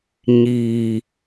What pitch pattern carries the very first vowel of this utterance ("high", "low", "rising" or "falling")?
low